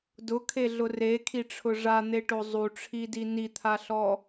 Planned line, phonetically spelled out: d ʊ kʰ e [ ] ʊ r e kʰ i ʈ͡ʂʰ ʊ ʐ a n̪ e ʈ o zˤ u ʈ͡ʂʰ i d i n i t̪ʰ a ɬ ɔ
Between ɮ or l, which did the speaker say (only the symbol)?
ɮ